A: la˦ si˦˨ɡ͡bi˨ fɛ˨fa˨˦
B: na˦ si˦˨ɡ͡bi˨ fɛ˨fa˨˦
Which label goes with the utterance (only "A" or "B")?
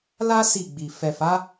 A